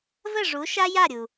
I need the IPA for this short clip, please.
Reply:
və˦˨ʐu˨˦ ʃa˦ja˦˨ɾʲu˨

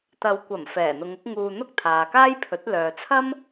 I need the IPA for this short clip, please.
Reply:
t̪ɐ˨˧wkʷɐ˨˩m fɛː˨˩n̪ʊ˨˧ŋʊ˨˥k̚ ŋuː˨ n̪ʊ˥k̚t̪ʰaː˨kaː˥jpʰɵ˨˥t̚ lœː˨t͡sʰɐ˥m

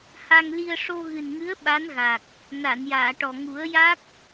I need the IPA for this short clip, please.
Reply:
ha˧ŋli˧ə̯ ʂo˧ɣɨ˨˩nŋɨ˧˥ə̯ ɓa˧˥n ɣa˨˩k̚ | na˨˩˨njaː˨˩˨ ʈɔ˨˩ ŋu˨˩˦ə̯ja˦˥k̚

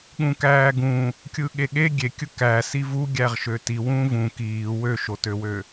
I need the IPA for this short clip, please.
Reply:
ɠũkæːɡũ | kʲɯɠeɠe ɡʲekʲɯ kæ sivu ɡʲæʁʃøti wũvũ kiː wøʃotøwø

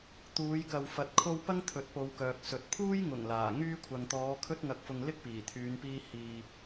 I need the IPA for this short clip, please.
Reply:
t̪uː˨˧jkɐ˨w fɐ˨t̚kʰo˧w pɐ˥ŋt̪ʰɵ˨˥t̚po˨˧wkœː˨k̚ sɵ˨t̚pʰuː˥j ŋʊ˨˩ŋ laː˨˩ ŋyː˧kʷʰɐ˨ŋt̪ɔː˨˧ kʰɵ˥t̚ŋɐ˧k̚fʊ˧ŋ lɪ˥k̚piː˨˩t̪ʰyː˨˧npiː˧ hiː˨

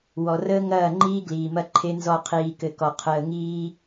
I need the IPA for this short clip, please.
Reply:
wɔ˨rəː˦ŋɐː˦˨ŋ͡ǃiː˦ ɡliː˨mɐ˦ǃʰe˦nzɔ˦˨ qʰiː˨kɘ˨kɔ˨ qʰəː˨ŋiː˦

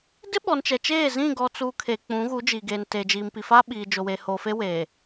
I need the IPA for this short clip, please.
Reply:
dɪ˦ɓɔ˨nt͡ʃɛ˨t͡ʃeː˦˨ zĩ˦˨ɡɔ˨t͡suː˨ kʰeː˨k͡pũ˨˦ɣu˨˦ d͡ʒiː˨ɡeː˨n teː˨d͡ʒiː˨mpi˨ faː˦ɓiː˨d͡ʒo˨weː˨ hoː˨fe˦weː˨

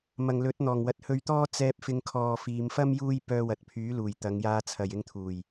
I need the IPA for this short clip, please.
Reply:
mɐ˨ŋlɵ˨˥t̚ n̪ɔː˨˩ŋwɐ˨t̚hɵ˧ɥt̪ɔː˥ t͡sɛː˧p̚ fɪ˧ŋkʰɔː˨fiː˨˧m fɐ˥m juː˥j pœː˧wɐ˨t̚pʰyː˨˥luː˨˩j t̪ɐ˨˧ŋjaː˧t͡sʰɐ˨j ɪ˧ŋt̪ʰuː˨˩j

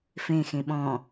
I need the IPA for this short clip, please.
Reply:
fẽxẽ ɓɔ̃

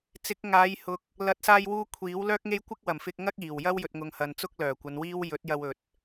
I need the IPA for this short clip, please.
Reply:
t͡sɪ˨˥k̚ŋaː˨˧jhʊ˨k̚ | lɐ˨˥t̚saː˧jwuː˧ kʷʰiː˨˥wlœː˥k̚ŋe˥j kʷɪ˥k̚wɐ˨˩mfɪ˧k̚ ŋɐ˥k̚iː˨˩w jɐ˥wjɵ˨t̚ŋʊ˨ŋ hɐ˨nt͡sʊ˥k̚ lœː˨˩kʷɐ˨˧nwiː˥w jɵ˨˥t̚jɐ˧w ɵ˨t̚

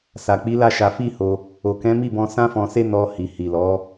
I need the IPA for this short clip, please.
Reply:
sa˨k͡pi˨˦ la˦˨ʃa˧fi˦ho˧ | o˨kɛ̃˨˦mi˦˨bɔ̃˧ sã˦fɔ̃˧se˦ nɔ˧hi˨ hi˨lɔ˨˦

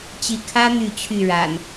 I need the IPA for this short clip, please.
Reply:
t͡ɕi˨˦ kʰä˦ n̪y˥˨t͡ɕʰy˥˨ɻa̰˨˩n

